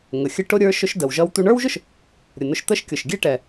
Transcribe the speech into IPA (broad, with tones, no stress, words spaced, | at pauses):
ŋə˩ xʲə˧ ʈʊ˧ɾʲə˞˧ ʃʊ˧ʃ də˩wʒʌ˧w t̪u˧ɳə˞˥wʒʊ˥ʃ | ɾʲə˩ nʊ˧ʃt̪ə˥ʃkʲʊ˩ʃ ɡʲɛ˥ʈɛ˩